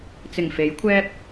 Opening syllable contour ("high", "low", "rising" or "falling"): low